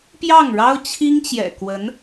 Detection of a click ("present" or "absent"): absent